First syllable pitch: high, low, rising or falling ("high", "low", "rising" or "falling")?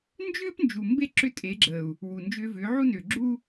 high